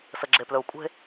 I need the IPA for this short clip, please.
s ə ɡ͡ǁ e p l ɵ u̯ kʷʼ e̤

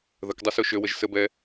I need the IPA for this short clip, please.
ð ə k dˤ ʌ s o ʃ ø w ə ʒ s ə b ɛ

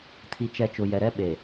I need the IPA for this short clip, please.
tʰ i˨ t͡ʃ ɛ˨ t͡ʃ ʊ˨ j ɛ˨ ɾ ɛ˦ ɓ e˨

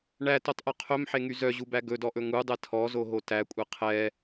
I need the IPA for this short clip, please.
ɳ æ t o tˤ ʔ ɵ qʰ ɵ m ħ e ŋ y z œ ʑ u b æ ɡ ɵ d ɔ ʔ ɵ ŋ u dˤ ɛ tʰ ɔ z o ɦ o t æ kʷʼ e qʰ ɛ

